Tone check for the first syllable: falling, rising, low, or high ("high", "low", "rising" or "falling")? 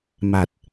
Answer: low